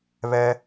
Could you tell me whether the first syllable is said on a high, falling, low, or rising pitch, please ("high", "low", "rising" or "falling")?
high